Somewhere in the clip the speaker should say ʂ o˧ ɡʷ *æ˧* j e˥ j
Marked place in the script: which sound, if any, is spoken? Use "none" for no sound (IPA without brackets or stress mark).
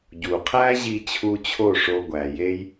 æ˩